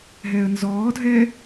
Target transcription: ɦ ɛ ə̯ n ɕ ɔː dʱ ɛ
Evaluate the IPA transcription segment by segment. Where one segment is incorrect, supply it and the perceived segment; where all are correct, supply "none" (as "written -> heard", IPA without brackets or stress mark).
ɕ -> z